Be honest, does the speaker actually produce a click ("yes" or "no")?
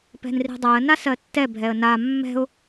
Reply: no